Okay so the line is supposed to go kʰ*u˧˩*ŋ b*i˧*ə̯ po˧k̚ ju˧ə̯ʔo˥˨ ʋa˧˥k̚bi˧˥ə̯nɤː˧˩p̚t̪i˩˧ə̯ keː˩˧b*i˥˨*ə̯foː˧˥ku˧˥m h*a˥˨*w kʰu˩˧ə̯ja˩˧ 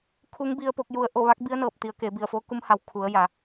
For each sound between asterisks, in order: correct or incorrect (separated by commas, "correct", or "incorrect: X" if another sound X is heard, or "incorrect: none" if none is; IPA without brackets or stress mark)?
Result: incorrect: u˧˥, correct, incorrect: i˧˩, incorrect: a˩˧